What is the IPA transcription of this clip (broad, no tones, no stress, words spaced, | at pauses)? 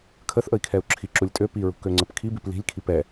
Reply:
kʰəθʔəi̯kʰɛu̯ ǁʰi ǁulʲtʼø piɹṳkø ŋ͡ǀəpkʰibip li̤lʲkʰip ɛ